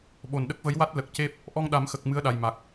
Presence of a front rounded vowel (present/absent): absent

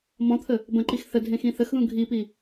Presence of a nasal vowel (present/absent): present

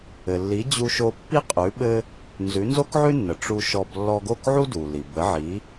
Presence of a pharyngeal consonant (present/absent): present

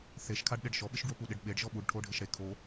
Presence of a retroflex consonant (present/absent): present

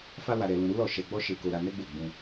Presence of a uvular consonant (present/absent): absent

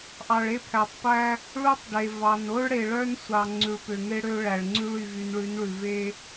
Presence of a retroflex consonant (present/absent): present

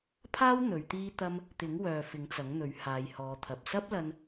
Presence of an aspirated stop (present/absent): present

